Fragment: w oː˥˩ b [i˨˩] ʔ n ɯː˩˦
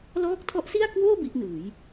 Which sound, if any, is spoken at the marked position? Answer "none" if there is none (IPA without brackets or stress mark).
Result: i˦˥